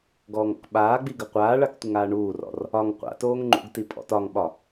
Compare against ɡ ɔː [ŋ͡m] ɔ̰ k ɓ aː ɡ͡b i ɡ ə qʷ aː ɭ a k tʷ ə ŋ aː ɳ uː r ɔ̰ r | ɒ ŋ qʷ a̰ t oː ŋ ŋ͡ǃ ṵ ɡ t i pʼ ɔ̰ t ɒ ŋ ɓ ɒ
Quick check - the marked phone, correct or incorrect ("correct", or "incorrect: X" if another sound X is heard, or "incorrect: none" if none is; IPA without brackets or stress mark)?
incorrect: ŋ